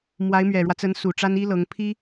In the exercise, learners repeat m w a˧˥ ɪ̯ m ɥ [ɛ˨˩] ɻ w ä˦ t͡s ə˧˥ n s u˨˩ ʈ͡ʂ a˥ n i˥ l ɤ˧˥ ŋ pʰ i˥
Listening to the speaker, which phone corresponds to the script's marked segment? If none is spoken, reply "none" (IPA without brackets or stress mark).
ɛ˨˩